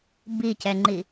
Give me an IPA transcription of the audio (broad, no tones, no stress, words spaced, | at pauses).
bicɛŋ͡ǃi